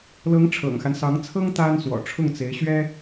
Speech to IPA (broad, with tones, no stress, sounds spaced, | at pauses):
l ɤ˧˥ ŋ ʈ͡ʂʰ ɤ̰˨˩ ŋ x a˦ n s ɑ˧˥ ŋ t͡sʰ ɤ˥ ŋ t̪ a˥ n s w ɔ̰˨˩ ʈ͡ʂʰ ʊ˥˩ ŋ t͡s e˧˥ ɪ̯ ɕ ɥ ɛ˥